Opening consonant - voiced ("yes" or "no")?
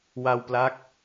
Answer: yes